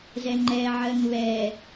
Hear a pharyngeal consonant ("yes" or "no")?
yes